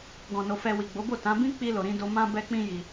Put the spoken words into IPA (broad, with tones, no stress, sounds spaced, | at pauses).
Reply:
ɡ ɔ̃˨ n o˨ f ɛ˨ w i˨ ɡ͡b o˨˦ b o˦˨ t ã˨˦ b ĩ˦ k͡p i˧ l o˨ ɾ ĩ˧ d o˧ m ã˦ b ɛ˦ k͡p ĩ˦ j i˧